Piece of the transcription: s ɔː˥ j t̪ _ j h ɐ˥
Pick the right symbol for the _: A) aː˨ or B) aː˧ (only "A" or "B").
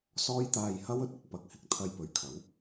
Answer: B